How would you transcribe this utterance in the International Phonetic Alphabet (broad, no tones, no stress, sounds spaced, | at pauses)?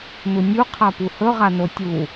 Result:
n u nʲ u qʰ a p u h ɵ ʁ a n o tʲ u